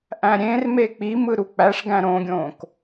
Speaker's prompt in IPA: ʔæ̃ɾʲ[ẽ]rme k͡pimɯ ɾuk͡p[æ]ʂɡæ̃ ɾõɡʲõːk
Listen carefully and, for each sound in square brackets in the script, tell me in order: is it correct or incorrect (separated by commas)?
correct, correct